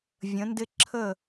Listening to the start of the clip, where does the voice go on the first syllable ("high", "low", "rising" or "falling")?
rising